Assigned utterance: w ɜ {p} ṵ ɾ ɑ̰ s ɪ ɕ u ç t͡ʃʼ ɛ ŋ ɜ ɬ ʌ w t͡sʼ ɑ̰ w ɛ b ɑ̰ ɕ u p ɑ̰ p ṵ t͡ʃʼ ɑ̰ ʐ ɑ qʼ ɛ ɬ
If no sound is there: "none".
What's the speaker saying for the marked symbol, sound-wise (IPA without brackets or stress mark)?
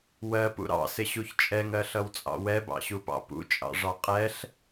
p